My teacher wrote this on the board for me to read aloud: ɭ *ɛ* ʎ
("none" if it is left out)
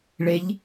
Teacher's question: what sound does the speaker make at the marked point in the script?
e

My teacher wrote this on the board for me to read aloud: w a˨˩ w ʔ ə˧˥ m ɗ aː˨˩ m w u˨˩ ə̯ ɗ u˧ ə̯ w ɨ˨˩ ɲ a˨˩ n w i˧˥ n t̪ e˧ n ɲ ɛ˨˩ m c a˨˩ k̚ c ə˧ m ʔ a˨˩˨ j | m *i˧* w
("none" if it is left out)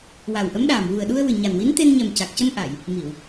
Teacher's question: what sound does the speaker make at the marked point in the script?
i˨˩˨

